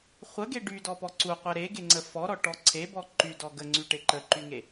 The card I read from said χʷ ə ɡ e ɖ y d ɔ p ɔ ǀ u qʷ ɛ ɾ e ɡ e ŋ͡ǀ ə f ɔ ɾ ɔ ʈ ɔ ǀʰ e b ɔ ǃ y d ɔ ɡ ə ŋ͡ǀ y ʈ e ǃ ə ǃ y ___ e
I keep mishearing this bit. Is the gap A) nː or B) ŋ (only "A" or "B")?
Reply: B